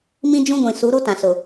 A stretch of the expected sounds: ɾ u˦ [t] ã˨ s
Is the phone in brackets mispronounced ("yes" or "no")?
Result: no